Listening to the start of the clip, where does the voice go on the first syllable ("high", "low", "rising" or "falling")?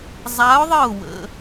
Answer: rising